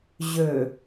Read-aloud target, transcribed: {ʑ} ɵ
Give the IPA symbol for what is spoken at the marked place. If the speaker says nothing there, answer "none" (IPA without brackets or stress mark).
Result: ʑ